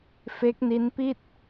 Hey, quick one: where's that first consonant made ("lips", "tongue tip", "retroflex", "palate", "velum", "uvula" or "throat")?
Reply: lips